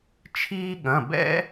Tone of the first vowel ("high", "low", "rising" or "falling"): high